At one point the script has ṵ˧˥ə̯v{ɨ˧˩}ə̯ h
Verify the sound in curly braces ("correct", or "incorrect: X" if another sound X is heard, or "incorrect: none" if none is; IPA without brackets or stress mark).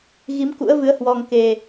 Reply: incorrect: ɨ˨˦